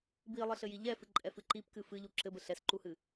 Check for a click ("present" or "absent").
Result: present